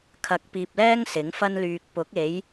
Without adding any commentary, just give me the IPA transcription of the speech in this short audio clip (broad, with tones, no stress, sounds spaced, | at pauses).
kʰ ɐ˨˥ k̚ p iː˨ p̚ l ɛː˥ ŋ s ɪ˨˥ ŋ f ɐ˥ n l yː˨ k̚ p ʊ˨˥ k̚ e˨˥ j